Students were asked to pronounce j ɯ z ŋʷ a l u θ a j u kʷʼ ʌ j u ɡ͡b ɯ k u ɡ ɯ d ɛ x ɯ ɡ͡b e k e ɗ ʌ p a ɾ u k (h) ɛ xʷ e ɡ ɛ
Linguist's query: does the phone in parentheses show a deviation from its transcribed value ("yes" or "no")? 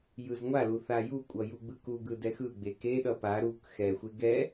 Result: yes